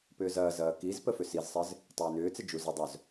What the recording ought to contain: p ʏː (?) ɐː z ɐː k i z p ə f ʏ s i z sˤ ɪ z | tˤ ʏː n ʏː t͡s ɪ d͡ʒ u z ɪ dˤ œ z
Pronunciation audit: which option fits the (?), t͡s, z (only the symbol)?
z